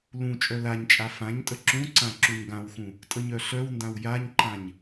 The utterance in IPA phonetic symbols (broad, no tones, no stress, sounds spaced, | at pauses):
l ũ t͡ʃʼ œ l a ɲ t͡ʃʼ a f ã ɲ tʼ ə ǁ ũ ǀ ã ǁ u ɲ ɡ ã w x ũ | tʼ ə ɲ œ ɬ œ w n d ã w j a ɲ ǃ ã ɲ